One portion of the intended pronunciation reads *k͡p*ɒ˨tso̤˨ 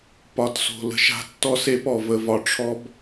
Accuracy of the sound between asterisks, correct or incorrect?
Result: incorrect